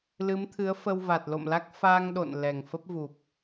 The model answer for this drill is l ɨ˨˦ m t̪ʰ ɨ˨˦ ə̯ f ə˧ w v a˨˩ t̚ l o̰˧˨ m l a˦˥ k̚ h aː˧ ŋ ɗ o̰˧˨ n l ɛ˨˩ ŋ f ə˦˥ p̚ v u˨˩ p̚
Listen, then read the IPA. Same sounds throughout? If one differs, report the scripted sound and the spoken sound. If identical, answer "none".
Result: h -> f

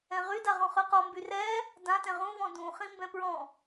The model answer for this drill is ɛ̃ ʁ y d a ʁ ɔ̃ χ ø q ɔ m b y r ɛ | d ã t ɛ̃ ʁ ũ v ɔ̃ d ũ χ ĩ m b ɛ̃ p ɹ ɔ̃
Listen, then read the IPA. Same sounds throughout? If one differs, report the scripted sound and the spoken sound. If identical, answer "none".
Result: none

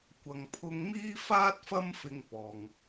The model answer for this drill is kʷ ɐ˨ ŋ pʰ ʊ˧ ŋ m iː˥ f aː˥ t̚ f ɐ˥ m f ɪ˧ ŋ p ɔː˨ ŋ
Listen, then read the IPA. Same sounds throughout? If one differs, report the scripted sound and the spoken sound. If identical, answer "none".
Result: none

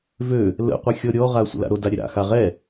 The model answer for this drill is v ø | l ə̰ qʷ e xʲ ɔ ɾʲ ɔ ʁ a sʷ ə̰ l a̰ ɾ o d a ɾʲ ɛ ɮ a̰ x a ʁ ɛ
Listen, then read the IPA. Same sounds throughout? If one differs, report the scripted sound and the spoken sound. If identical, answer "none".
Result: ɮ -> ɾ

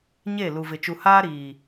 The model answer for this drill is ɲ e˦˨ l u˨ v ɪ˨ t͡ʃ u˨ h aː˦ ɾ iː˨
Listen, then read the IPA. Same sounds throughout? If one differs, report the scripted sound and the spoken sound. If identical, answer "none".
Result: none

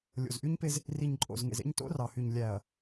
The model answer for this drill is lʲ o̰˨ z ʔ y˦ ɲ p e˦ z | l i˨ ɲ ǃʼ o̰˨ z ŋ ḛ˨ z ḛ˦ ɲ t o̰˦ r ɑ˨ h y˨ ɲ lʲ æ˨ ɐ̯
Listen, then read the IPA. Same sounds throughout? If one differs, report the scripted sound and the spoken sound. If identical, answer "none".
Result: l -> r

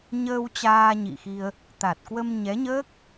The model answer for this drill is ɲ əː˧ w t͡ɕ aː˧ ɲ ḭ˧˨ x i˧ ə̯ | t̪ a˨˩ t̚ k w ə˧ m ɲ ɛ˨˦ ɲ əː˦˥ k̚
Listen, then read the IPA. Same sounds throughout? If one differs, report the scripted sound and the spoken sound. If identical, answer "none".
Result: none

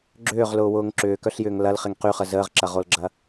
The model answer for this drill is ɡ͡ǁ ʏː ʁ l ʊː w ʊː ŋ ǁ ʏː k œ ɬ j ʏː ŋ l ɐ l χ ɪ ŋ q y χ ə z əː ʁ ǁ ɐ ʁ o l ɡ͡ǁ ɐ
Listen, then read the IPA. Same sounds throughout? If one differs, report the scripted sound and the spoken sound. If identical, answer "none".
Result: none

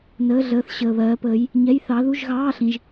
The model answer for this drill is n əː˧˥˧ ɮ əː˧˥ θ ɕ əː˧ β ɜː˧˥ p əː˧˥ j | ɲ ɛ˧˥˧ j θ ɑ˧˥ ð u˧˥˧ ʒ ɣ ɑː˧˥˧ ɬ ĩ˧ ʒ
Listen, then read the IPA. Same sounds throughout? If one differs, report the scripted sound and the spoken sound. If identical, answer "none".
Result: none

